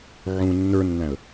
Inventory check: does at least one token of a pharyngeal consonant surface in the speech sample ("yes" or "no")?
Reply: yes